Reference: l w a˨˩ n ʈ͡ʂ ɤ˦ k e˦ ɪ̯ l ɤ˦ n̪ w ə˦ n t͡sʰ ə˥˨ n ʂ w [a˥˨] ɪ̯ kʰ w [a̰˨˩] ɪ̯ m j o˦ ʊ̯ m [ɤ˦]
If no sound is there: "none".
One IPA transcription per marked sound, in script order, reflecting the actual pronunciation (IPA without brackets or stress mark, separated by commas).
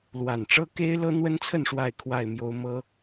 a˥˨, a˥˨, ɤ˦